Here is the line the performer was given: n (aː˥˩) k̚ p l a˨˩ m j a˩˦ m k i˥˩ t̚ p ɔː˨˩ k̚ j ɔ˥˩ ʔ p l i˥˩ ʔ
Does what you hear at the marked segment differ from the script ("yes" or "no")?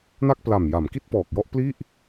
yes